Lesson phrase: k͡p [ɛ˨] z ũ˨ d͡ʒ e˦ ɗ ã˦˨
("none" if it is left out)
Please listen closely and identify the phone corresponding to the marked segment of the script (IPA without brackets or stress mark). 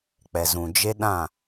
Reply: ɛ˨